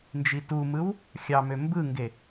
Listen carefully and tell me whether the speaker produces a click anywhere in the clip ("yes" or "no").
no